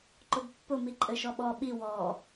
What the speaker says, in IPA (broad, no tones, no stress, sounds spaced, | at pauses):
ǃ ʊ b pː ʊ m i ǃʼ ɘ ʃ ɔ ɓ ɔ ɓ i w ɔ